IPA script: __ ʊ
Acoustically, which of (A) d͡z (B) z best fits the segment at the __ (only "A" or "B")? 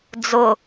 A